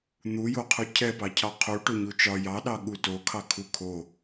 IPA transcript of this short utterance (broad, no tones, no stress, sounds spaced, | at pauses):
n̪ u j o qʰ u cʰ ɛ p ɑ cʰ ɑ qʰ u ʈ o ɲ u t͡ʃ ɒ j ɑ ɗ ɑ ɠ u t o kʰ ɑ kʰ u kʰ o